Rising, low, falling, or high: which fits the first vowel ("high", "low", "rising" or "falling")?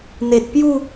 low